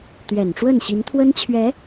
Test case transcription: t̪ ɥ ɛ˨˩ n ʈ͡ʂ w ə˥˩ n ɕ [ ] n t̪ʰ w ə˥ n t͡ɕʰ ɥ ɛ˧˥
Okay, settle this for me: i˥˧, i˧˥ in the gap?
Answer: i˧˥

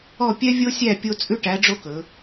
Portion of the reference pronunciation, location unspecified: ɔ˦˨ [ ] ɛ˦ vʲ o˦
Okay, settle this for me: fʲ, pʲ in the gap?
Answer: pʲ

